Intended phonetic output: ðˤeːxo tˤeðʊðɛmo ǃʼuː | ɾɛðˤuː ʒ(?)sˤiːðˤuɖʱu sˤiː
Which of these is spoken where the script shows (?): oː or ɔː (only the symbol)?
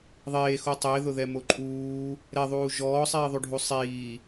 ɔː